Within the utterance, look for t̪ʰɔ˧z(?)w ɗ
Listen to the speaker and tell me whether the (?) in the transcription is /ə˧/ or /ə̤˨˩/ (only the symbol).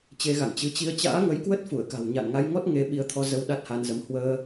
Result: ə˧